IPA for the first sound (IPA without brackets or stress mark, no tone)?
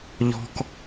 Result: ʎ